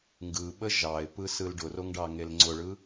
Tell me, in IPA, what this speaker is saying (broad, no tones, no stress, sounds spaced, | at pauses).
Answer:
ŋ ɡ ɯ ɓ ə ʒ ɑ ɪ̯ p ɯ s ɯ l ɖ ʊ r o ŋ ɖ ɑ ŋ e l ŋ͡ǀ ʊ ɭ ɯ